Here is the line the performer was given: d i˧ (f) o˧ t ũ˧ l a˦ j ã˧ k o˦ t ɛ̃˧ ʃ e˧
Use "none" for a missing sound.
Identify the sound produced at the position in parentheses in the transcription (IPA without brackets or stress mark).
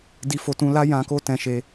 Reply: f